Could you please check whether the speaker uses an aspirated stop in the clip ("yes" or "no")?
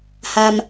no